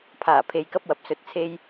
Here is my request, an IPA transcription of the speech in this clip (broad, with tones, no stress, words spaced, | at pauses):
pʰaː˨˩pʰe˨j kɐ˥p̚wɐ˨p̚sɵ˧t̚t͡sʰe˥j